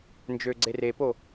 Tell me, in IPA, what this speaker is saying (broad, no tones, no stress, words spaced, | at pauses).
nd͡ʒøɡ͡ǀe repo